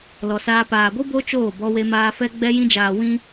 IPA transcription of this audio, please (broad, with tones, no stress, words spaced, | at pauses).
lɔ˨saː˧ paː˨ɡʷɨ˦ bo˦t͡ʃoː˦˨ bɔ˧we˧maː˧fɛ˦ ɡ͡bɛ˧jĩ˧d͡ʒaː˨ wĩ˦